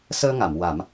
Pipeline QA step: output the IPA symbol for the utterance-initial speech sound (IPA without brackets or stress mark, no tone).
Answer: s